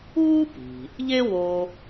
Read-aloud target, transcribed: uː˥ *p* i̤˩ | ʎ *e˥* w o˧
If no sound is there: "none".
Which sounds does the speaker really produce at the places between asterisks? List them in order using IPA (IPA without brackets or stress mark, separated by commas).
p, e˥